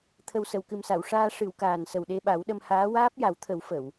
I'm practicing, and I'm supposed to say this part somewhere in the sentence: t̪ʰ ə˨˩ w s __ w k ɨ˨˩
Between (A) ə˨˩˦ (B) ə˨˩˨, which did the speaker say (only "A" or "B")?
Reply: B